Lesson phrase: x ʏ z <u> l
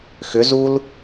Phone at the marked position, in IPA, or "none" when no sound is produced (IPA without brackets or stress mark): u